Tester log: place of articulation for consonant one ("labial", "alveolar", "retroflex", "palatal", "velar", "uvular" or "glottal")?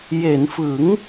palatal